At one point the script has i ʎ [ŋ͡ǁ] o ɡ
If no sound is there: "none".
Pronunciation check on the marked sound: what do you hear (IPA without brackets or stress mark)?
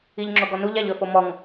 ŋ͡ǁ